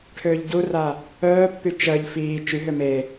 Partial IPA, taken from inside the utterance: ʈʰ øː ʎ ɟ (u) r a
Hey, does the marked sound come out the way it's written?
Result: yes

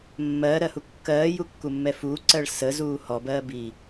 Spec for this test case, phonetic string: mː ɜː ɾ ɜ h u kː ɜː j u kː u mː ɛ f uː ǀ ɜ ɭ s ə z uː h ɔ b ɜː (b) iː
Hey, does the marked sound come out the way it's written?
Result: yes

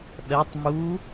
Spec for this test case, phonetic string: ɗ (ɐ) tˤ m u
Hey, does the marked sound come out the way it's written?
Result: yes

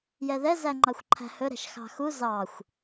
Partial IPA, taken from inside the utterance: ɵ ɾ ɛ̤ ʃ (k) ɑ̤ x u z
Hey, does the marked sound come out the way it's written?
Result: no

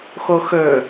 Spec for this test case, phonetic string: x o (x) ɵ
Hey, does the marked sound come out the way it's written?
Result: yes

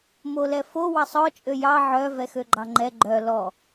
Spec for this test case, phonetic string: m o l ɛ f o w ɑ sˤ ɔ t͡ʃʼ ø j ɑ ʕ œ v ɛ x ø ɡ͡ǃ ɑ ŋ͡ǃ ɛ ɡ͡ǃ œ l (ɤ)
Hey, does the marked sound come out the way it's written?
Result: no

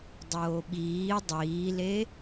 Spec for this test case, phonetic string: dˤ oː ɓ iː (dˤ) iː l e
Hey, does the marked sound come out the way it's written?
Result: yes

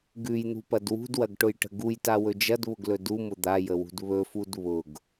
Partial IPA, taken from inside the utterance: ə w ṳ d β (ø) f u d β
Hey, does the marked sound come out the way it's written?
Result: no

